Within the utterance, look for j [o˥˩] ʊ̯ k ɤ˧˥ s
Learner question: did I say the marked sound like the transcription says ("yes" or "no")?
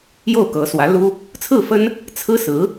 yes